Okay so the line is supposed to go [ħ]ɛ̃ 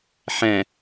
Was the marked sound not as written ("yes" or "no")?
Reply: no